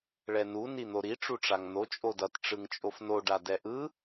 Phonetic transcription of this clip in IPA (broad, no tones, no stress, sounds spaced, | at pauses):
ɭ ɛ n u n i n̪ o ɾ i ʈ͡ʂ u ʈ͡ʂ a ŋ n̪ o t͡ʃʼ o d ʌ t ʈ͡ʂ ɯ ŋ t͡ʃʼ o f n o ɖ a d ɛ ʔ ɯ